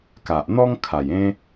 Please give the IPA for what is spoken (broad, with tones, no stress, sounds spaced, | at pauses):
k a˨ ʔ n̪ ɔ˦ ŋ kʰ a˨˩ j ẽ˦